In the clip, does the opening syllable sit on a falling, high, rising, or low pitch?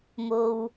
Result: low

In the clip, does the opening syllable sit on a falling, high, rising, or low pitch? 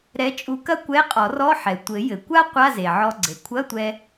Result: rising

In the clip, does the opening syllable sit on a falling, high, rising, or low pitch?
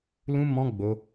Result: high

